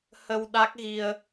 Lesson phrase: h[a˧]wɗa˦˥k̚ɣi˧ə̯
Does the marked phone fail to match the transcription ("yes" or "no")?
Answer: yes